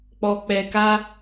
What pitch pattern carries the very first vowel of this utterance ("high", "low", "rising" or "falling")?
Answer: low